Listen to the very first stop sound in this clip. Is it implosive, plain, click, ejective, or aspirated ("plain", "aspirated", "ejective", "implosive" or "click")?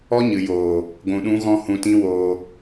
plain